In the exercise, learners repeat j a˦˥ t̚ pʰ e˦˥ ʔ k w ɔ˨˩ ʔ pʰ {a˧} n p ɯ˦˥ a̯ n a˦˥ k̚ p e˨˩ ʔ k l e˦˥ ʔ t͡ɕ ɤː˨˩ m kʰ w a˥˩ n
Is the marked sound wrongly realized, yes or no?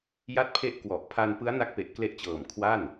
no